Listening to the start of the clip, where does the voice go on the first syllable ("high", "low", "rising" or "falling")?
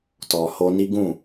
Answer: low